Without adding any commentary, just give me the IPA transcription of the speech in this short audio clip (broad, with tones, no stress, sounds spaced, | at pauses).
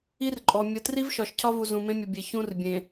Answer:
i˦ r ǃʼ ɔ˨ mʲ ə˦ t r i˦ v ʃ ɒ˨ ʃ cʰ ɒ˦ v u˨ z ũ˨ m ẽ˦ mʲ ə˨ bʲ e˨ ç ũ˦ r bʲ ẽ˨